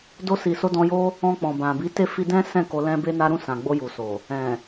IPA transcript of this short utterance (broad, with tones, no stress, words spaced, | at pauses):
do˧si˨so˧ dɔ̃˧jo˦ | ɔ̃˧k͡pɔ̃˨bã˨ bi˨˦te˦˨fi˧dɛ̃˦ sɛ̃˦˨ ko˧lɛ̃˦be˦na˦ ɾũ˦˨sã˨ɡ͡bo˧ ju˨so˨ | ɛ̃˨